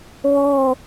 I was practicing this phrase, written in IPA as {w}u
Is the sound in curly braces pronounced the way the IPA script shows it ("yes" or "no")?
yes